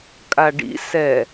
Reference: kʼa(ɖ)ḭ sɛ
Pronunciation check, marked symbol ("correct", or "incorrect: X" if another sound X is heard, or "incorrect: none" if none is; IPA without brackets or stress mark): correct